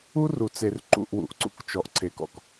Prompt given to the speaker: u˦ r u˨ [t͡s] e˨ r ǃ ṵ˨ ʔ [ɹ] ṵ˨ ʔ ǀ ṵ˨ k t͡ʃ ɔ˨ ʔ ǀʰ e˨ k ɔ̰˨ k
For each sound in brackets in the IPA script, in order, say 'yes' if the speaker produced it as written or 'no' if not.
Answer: yes, no

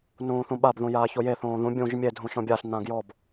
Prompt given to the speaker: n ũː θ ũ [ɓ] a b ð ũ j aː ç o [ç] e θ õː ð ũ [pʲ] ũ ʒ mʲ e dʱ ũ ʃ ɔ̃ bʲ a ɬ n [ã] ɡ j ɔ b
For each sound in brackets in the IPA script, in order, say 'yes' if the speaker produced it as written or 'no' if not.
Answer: yes, no, no, yes

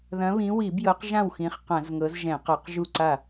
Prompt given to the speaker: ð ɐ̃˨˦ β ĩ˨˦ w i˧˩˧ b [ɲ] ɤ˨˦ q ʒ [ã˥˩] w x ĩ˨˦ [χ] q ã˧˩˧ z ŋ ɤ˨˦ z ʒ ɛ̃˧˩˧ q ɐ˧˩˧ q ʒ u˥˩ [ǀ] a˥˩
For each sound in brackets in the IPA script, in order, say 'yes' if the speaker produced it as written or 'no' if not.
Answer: no, yes, yes, yes

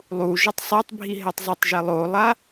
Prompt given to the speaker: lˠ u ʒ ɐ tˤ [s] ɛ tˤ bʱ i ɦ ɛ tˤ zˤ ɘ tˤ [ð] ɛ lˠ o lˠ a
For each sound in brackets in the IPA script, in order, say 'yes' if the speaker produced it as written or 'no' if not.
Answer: no, no

